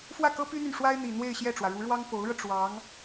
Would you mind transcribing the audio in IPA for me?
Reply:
f w ä˥˩ k ɤ˥ p y˥ n̪ y˨ n ʂ w a˥ ɪ̯ n̪ i˨˩ n̪ w e˥˧ ɪ̯ ɕ j ɛ˥˩ ʈ͡ʂ w ä˩ ɻ u˧˥ ɻ w ɑ˥ ŋ p o˧˥ ʊ̯ ɻ ɤ˧ ʈ͡ʂ w ɑ˧˥ ŋ

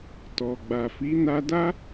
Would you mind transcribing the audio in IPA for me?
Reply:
t ɔ˨ ɡ͡b a˨ f i˨˦ n a˧ d a˦

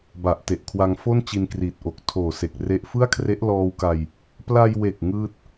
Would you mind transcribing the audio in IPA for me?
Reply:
b a˨˩ ʔ t e˨˩ ʔ kʰ w a˧ ŋ f o˥˩ n t͡ɕ i˧ n k r iː˨˩ t̚ ʔ o˨˩ k̚ tʰ oː˨˩ s e˨˩ k̚ r e˦˥ ʔ f ɯ˥˩ a̯ kʰ r e˦˥ ʔ l ɔː˧ w k a˧ j | p l a˧ j w e˨˩ k̚ ŋ ɯː˥˩ t̚

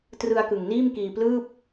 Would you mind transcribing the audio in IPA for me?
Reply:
t r ɯ˧ a̯ k ɯ˨˩ ŋ n iː˥˩ m k iː˧ p l ɯː˥˩ p̚

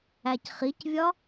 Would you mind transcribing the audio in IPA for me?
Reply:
æ c χ i c vʲ ɒ

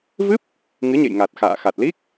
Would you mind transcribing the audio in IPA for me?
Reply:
v ɨ˦˥ p̚ | ŋ ɨ˨˦ ɲ ḛ˧˨ j ŋ a˨˩ t̚ x a̰ː˧˨ x a˨˩ t̚ l i˦˥ k̚

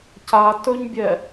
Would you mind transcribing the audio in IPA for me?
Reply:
c a t ɵ ɲ bʲ ɛ

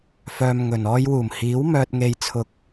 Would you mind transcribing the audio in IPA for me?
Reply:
f œː˧ m ŋ ɵ˨ n ɔː˧ j w uː˨˩ m h iː˨˥ w m œː˧ t̚ ŋ e˧ j t͡sʰ ʊ˧ k̚

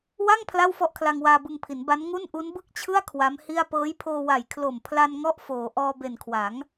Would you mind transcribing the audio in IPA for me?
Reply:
w a˥˩ ŋ pʰ l a˥˩ w f ɔ˥˩ ʔ kʰ l a˧ ŋ w aː˧ b ɯ˧ ŋ pʰ i˩˦ n b a˦˥ n ŋ u˥˩ n ʔ u˦˥ n b ɯ˥˩ k̚ t͡ɕʰ ɯ˥˩ a̯ kʰ w a˦˥ m h i˥˩ a̯ p ɤː˦˥ j pʰ oː˧ w a˨˩ j kʰ l o˨˩ m pʰ l a˧ n ŋ ɔ˥˩ ʔ f oː˩˦ ʔ ɔː˧ b e˨˩ n kʰ w a˩˦ ŋ

